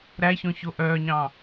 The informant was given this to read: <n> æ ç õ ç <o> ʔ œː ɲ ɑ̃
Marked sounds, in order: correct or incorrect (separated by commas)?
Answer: incorrect, correct